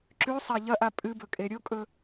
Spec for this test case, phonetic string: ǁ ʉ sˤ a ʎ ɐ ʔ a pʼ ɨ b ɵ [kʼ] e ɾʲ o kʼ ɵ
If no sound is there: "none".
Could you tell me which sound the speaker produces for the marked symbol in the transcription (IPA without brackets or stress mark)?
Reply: kʼ